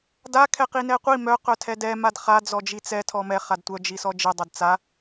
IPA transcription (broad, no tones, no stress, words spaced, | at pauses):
da kʰɛqinɛqʷi mœ qœtʰɛdɛ madχa d͡zɔd͡ʒit͡sɛ tʰɔmɛ χadtʷœ d͡ʒisɔd͡ʒi dˤɛdt͡sa